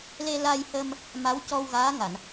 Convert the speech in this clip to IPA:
l e˧ l a˧ j h ə˧ m | m a˧˥ w c ɔ˧ w ɣ aː˧˥ ŋ a˨˩˨ n

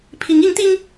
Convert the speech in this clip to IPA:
pʰ i˧˥ ŋ i˧˥ ŋ t̪ i˥ ŋ

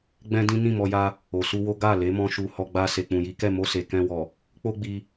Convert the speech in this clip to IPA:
ɡ͡b ɛ̃˦ d ĩ˦ n ĩ˦˨ m ɔ˧ j a˧ | o˨ s u˧ w o˦ ɡ a˦˨ l e˨˦ m ɔ̃˧ ʃ u˨ h ɔ˧ ɡ͡b a˧ s e˨ k͡p ũ˨ j i˨˦ k ɛ˦˨ m o˧ s e˨ k ɛ̃˧ w ɔ˨ | k͡p o˦ ɡ͡b i˧

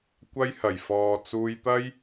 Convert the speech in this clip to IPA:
kʷ ɐ˧ j h ɐ˨˩ j f ɔː˨ t͡s uː˧ j t̪ ɐ˥ j

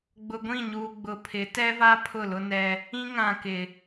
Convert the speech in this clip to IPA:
ɡ͡b ʊ˨ ɡʷ ĩ˦˨ ɲ uː˨ ɡ͡b ʊ˨ pʰ ɪ˨˦ t ɛ˦ v a˦ pʰ ʊ˦˨ l ʊ˦ n ɛ˦ | ĩ˦ ŋ ã˨ k ɪ˨

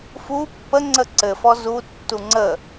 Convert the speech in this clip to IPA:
f u pː ə ŋ͡ǀ ə ǀ ɘ f ɔ z u tː u ŋ͡ǀ ə

